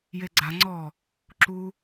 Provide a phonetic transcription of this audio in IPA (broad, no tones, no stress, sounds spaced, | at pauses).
j e ɡ͡ǀ a ŋ͡ǀ ɔ | ǁ u